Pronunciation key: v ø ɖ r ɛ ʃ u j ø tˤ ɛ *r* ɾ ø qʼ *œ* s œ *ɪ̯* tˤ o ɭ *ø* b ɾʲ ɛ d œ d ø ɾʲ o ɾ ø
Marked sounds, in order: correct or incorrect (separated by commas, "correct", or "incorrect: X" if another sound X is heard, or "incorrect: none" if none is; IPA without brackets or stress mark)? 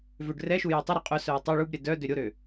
incorrect: none, correct, incorrect: ə̯, incorrect: u